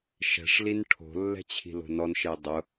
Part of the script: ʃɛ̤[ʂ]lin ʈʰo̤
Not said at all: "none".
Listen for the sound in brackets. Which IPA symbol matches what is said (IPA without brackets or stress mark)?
ʂ